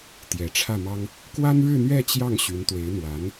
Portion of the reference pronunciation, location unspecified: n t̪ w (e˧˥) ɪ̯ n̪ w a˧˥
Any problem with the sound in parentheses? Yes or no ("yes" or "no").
no